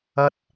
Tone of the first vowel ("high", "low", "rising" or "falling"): high